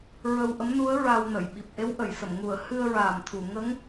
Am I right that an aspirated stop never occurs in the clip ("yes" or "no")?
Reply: no